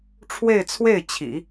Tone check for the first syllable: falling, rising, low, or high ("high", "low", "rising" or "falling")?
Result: falling